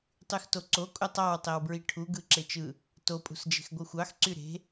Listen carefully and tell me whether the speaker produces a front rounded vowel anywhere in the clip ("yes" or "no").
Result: yes